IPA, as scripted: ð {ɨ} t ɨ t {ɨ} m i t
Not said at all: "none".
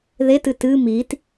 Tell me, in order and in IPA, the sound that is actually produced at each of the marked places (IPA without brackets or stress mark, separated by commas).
e, ɨ